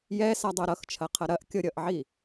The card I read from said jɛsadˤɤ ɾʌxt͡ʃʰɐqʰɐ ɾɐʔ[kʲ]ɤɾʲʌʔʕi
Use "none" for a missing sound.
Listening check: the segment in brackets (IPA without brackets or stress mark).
kʲ